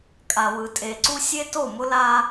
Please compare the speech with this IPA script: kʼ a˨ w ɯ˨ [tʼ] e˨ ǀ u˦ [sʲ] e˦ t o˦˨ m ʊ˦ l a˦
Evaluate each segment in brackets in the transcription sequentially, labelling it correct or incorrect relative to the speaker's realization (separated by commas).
correct, correct